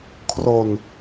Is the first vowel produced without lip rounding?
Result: no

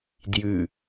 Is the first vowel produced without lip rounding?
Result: no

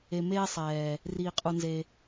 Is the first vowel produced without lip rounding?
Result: yes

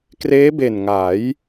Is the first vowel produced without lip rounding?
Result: yes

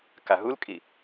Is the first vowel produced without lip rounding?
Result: yes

